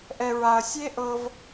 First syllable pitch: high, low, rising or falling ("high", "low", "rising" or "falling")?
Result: low